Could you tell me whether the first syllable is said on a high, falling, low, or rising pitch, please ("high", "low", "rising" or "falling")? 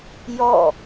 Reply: falling